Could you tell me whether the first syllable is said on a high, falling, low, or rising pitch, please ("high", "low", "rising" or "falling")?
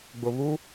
low